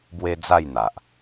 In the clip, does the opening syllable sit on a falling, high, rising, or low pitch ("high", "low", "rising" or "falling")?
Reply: high